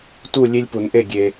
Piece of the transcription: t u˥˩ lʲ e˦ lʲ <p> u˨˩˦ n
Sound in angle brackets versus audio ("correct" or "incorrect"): correct